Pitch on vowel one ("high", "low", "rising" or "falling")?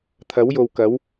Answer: rising